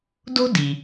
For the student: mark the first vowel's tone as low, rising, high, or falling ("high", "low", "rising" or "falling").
high